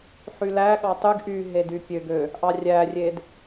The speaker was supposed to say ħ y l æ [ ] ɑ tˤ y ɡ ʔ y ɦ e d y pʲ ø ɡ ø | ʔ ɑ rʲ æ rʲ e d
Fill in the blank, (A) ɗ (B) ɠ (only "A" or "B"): B